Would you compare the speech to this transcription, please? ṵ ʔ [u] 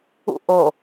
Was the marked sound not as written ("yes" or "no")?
yes